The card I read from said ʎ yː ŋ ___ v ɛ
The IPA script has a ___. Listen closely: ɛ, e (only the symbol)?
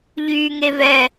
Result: e